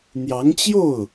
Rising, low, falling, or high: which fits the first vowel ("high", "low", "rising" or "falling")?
rising